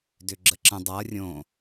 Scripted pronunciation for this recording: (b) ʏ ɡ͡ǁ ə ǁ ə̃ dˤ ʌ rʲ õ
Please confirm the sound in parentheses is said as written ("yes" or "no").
no